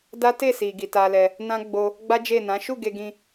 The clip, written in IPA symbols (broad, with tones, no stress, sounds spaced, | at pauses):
d a˦ t e˦˨ s i˨ ɡ i˨ t a˧ l ɛ˧ | n ã˦ ɡ͡b o˧ | ɡ͡b a˦ d͡ʒ e˦˨ n ã˨˦ ʃ u˦˨ ɡ e˧ ɡ ĩ˧